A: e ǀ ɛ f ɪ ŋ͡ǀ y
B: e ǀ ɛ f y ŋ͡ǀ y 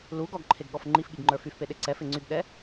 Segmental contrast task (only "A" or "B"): A